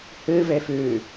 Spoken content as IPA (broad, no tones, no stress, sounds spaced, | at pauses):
h ɨ v e f ʉ